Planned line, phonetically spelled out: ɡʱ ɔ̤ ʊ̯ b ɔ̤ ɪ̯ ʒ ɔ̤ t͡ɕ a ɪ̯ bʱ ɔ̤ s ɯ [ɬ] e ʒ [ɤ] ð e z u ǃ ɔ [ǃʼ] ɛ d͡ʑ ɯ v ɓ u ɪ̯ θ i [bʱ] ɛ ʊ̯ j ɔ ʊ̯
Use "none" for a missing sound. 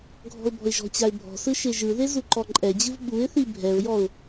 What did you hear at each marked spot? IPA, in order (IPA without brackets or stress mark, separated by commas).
ʃ, ɯ, ǃʼ, bʱ